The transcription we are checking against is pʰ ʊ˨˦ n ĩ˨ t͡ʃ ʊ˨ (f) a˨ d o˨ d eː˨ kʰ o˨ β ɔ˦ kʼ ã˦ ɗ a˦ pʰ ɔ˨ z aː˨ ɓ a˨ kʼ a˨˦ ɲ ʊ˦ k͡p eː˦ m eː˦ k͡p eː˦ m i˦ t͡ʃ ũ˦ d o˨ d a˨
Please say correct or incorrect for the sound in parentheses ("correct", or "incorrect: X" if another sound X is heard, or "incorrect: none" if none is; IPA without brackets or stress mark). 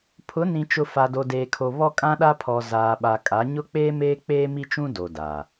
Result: correct